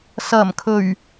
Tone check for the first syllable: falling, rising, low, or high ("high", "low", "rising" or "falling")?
low